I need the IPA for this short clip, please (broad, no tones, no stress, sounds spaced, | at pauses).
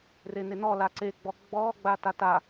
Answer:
r e n e n ɔ l a ǀ e ɡ͡b ɔ ɡ͡b ɔ ɡ͡b a t a t a